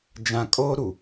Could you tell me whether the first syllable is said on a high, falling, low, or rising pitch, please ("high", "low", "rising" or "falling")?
low